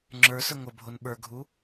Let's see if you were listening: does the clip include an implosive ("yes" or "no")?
yes